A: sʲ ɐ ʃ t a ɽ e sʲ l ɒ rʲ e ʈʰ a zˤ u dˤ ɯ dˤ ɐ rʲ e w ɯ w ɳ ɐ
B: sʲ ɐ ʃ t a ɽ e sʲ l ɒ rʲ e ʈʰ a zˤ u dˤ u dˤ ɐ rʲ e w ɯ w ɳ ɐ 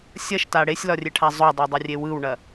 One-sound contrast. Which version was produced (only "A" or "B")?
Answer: B